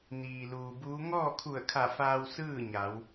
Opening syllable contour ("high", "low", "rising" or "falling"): low